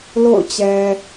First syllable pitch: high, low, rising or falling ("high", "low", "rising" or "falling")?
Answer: falling